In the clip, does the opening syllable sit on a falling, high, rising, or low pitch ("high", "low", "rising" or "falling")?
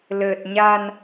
low